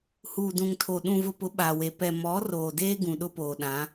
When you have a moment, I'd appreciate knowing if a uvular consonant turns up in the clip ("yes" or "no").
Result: no